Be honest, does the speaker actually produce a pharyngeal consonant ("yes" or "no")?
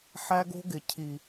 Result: yes